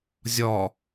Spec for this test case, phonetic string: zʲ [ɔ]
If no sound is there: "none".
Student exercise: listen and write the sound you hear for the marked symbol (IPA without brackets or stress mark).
ɔ